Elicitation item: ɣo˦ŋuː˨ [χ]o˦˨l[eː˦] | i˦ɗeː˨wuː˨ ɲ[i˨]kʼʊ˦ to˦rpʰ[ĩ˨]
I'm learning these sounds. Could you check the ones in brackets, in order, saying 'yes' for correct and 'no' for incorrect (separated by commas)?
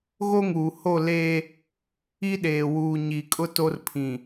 no, yes, yes, yes